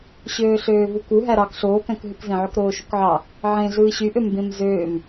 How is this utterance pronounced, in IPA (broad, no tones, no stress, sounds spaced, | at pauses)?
ɕ øː ɬ øː v u k u ɦ æ ɾ ɑ k ɬ oː k æ̃ k ɦ ɯ k z ẽ ʕ ø k ɾ oː ʃ u k ʕ ɑ | ʕ ẽ ɮ ɯː ɕ y ʔ ø m b ẽ m z øː m